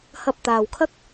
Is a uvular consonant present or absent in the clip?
absent